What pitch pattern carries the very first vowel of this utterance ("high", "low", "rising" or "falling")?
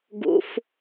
low